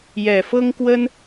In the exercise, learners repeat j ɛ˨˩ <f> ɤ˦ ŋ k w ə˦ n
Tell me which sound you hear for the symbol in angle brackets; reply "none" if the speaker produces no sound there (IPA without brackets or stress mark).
f